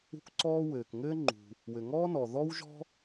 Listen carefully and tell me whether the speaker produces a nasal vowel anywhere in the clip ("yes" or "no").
no